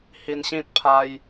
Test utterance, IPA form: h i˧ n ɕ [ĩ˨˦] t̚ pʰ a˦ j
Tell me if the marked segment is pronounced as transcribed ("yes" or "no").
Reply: no